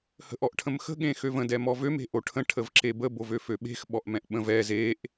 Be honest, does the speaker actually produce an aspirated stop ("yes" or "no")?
yes